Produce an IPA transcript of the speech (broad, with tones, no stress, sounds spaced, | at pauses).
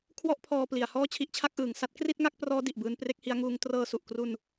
kʰ w ɔ˥˩ ʔ pʰ ɔː˧ p l i˩˦ a̯ h ɔː˥˩ t͡ɕʰ i˦˥ ʔ t͡ɕʰ a˥˩ k̚ ʔ ɯː˨˩ ŋ s a˥˩ t̚ k r i˥˩ t̚ ŋ a˥˩ k̚ p r ɔː˦˥ d i˨˩ ʔ b ɯː˧ n p r e˥˩ k̚ h i˦˥ a̯ ŋ uː˦˥ ŋ t r ɤː˧ s u˨˩ ʔ k r u˧ n